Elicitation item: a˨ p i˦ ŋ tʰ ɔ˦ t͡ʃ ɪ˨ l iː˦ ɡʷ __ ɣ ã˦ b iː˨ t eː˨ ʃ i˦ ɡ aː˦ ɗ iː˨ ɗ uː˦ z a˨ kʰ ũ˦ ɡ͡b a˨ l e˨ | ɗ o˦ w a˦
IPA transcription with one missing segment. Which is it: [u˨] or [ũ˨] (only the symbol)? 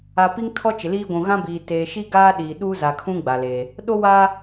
ũ˨